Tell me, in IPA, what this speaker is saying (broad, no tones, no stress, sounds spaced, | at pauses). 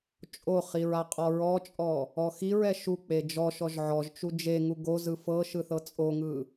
t͡ʃʼ o χ i ɹ a qʼ ɔ ɹ ɔ t͡ʃʼ ɔ | ɔ x i ɹ ɛ ʃ u k͡p e d͡ʒ ɔ ʃ ɔ ʒ ʕ ɔ ʒ t͡ʃ u d͡ʒ e ŋ u ɡ o z ɯ f ɤ ʃ ɯ θ ɤ t͡sʼ o ŋ ɯ